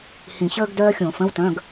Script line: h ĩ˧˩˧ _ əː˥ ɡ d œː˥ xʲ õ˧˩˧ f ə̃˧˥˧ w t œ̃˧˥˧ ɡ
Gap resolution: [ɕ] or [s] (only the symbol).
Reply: ɕ